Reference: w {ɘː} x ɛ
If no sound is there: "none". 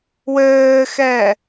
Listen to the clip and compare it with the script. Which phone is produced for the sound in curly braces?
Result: ɘː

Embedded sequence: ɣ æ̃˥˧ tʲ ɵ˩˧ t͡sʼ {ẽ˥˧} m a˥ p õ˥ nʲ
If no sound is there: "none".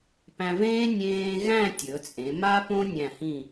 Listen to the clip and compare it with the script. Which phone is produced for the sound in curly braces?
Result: ẽ˩˧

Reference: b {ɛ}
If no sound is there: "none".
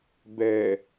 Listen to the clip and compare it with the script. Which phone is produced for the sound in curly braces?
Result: ɛ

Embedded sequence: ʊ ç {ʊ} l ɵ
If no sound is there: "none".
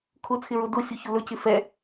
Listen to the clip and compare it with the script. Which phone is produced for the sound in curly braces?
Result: ʊ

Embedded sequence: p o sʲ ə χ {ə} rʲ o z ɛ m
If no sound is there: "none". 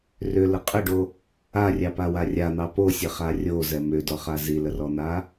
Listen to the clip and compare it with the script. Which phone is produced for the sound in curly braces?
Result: a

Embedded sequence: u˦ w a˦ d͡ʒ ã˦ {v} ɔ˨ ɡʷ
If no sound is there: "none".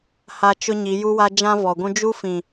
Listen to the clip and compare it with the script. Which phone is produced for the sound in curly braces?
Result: v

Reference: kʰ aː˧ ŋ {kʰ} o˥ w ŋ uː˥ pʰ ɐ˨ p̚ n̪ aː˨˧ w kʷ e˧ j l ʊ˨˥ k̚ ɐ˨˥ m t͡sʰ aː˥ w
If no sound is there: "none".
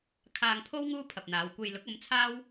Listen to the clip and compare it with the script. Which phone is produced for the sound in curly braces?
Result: pʰ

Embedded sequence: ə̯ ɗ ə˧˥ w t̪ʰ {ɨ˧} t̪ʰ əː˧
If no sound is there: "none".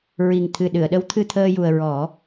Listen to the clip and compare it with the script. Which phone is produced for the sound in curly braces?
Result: ɨ˧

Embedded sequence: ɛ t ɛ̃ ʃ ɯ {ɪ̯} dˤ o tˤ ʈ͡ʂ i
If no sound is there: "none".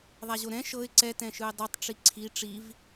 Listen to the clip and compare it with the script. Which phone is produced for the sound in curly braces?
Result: ɪ̯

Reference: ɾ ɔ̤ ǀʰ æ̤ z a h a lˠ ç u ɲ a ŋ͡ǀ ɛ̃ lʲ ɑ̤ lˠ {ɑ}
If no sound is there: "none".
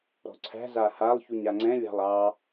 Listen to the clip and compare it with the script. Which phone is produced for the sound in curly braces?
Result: ɑ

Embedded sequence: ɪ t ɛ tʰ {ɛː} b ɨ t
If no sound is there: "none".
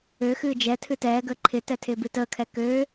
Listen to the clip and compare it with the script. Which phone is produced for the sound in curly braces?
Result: ɪː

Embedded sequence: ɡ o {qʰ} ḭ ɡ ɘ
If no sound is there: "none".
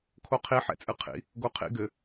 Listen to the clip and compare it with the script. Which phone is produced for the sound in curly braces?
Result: qʰ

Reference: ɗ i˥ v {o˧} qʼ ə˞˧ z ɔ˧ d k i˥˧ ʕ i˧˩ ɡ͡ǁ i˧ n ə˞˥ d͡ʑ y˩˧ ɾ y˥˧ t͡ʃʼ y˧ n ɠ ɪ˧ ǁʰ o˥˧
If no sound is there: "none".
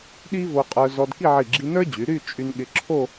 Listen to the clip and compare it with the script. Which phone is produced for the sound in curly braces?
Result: o˧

